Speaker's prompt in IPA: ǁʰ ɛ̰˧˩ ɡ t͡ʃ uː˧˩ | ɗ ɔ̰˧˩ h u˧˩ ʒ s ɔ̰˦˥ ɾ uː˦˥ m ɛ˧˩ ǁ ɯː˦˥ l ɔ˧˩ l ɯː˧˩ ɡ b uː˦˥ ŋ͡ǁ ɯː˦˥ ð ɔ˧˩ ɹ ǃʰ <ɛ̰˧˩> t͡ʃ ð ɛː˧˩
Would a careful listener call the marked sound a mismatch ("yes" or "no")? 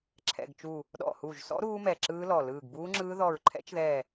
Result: yes